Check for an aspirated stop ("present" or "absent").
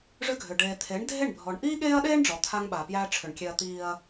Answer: present